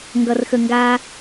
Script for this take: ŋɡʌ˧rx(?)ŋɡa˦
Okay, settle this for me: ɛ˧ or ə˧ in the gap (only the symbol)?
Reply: ə˧